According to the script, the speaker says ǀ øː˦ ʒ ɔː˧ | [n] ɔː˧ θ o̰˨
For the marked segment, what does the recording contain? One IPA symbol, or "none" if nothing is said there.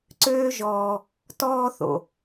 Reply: t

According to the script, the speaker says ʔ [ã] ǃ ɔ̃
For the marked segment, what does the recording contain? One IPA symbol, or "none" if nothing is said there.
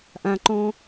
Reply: ã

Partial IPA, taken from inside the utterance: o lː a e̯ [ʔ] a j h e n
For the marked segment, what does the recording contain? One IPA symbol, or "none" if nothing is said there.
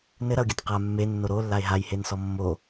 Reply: ɦ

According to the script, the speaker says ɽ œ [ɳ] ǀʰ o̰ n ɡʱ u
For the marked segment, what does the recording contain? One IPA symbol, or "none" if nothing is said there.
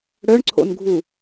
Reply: ɳ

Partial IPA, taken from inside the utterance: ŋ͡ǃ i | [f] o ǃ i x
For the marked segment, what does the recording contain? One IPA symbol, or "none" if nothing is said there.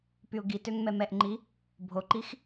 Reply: bʱ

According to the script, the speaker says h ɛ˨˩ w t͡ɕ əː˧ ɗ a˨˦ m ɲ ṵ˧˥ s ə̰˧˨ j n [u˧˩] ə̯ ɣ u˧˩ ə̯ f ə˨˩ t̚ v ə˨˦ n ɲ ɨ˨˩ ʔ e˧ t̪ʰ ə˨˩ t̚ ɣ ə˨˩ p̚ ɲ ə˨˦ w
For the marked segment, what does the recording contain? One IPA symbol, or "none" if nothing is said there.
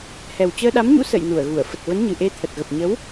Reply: u˧˩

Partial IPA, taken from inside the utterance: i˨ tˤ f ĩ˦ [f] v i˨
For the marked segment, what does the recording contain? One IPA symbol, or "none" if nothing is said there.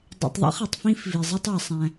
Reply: f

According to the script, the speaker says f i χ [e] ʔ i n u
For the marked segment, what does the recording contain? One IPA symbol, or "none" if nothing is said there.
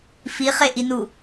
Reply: e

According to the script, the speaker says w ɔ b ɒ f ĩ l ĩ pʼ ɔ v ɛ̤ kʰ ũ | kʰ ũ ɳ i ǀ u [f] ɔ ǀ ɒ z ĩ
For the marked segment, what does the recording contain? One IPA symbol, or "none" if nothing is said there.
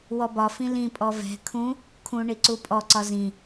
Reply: pʼ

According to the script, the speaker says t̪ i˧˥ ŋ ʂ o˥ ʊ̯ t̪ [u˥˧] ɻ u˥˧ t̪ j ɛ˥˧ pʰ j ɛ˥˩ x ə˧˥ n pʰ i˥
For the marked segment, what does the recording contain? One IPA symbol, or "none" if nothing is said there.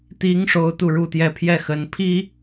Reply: u˥˧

